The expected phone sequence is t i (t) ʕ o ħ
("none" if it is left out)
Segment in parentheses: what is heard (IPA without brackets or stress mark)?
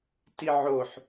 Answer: none